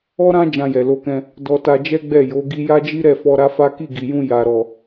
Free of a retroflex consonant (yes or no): yes